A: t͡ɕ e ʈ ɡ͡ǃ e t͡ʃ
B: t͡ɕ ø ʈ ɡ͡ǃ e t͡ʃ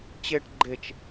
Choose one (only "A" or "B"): A